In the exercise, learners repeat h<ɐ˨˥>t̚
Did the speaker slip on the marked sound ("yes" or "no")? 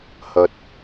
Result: yes